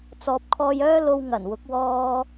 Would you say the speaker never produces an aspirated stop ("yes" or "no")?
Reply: no